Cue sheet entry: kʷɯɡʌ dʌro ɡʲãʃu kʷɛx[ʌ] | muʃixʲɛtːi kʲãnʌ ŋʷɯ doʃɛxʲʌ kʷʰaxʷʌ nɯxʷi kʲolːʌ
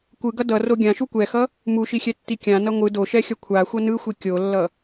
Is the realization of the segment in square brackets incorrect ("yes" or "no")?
no